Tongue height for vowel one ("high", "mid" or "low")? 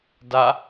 low